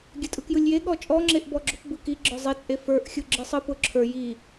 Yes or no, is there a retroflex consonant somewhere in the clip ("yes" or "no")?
no